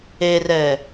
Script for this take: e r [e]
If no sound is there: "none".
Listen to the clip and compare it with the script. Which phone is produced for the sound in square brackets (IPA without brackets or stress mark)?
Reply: ɛ